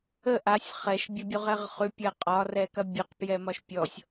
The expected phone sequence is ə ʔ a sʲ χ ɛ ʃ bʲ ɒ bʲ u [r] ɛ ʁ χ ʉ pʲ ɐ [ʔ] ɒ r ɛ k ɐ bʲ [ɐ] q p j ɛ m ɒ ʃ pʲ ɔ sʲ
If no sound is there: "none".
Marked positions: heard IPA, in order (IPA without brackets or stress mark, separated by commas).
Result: ʁ, qʼ, ə